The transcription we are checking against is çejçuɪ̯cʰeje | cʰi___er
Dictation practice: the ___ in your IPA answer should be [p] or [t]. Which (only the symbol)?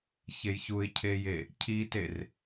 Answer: t